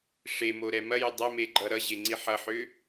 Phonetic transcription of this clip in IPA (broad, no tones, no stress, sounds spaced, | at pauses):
ʂ e m o ɾ ɛ m ɐ j ʏ dˤ ɐ m e ɡ͡ǃ ʌ ɾ ʌ ʑ e ŋ͡ǀ i ħ ʌ ħ ʏ